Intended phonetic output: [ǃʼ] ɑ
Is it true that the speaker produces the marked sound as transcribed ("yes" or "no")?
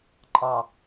yes